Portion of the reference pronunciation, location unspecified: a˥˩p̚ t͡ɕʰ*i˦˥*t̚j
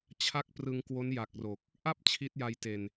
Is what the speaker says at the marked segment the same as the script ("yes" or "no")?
yes